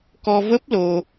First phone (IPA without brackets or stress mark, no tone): k